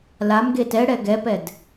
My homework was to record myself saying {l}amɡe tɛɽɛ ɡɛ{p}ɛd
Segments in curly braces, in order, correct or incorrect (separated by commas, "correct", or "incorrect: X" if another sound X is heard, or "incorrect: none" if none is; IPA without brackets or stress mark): correct, correct